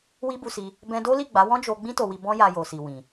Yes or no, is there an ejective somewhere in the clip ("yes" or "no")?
no